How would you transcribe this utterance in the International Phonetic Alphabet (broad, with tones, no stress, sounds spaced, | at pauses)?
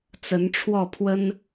t͡s ə˧˥ n ʈ͡ʂʰ w ɔ˥˩ pʰ w ə˥ n